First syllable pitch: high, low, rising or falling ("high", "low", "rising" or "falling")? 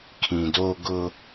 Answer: low